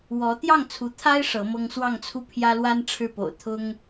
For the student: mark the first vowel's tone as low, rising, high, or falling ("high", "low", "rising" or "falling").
rising